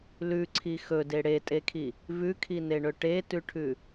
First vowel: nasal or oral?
oral